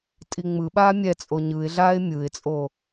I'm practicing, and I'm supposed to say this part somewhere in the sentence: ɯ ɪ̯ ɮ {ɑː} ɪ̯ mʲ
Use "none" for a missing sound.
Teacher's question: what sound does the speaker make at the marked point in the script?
aː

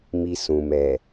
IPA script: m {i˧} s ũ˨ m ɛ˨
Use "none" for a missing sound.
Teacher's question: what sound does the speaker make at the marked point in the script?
i˧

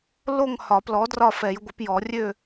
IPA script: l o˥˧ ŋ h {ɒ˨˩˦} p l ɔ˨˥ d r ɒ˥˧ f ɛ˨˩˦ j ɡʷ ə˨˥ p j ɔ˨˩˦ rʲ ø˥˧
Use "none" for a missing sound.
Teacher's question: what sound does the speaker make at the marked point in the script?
ɒ˨˩˦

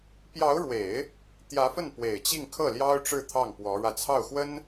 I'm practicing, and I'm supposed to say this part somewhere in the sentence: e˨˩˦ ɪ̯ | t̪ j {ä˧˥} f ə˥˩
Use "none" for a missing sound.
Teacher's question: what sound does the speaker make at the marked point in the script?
ä˧˥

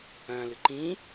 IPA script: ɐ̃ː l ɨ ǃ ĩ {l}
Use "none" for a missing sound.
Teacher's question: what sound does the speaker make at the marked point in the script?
none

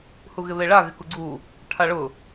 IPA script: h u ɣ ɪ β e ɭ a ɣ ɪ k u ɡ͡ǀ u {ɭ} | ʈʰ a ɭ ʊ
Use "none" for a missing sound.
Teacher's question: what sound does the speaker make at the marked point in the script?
none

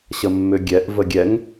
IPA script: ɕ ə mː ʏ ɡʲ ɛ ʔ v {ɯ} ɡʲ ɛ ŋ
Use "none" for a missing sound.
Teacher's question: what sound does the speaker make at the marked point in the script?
ə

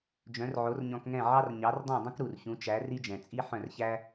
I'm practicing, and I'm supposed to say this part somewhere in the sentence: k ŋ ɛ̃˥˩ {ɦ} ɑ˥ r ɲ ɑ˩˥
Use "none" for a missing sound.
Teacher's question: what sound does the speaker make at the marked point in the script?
ʕ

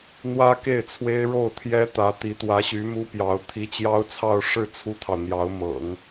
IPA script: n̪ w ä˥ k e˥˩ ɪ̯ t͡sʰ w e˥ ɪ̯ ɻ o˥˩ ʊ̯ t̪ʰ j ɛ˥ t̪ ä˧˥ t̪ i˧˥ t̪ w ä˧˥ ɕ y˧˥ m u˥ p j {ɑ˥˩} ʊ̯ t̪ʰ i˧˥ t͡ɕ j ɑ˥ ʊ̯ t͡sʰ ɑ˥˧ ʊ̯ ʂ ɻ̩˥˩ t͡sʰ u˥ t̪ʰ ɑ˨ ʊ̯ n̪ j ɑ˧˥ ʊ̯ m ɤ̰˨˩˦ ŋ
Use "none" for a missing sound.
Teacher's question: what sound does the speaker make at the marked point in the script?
ɑ˧˥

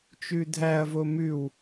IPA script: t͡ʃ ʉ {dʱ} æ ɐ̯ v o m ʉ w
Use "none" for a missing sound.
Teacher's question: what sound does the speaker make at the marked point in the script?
dʱ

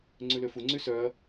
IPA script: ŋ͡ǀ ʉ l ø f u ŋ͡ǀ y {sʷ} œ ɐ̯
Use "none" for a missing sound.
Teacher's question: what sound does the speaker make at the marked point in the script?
s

